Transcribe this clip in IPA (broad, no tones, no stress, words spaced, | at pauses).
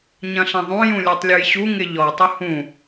ɲɐ̃ɬɐ̃ðˤũ jũlʲetˤlʲujɕu ŋɪʎɔ tˤʊhũ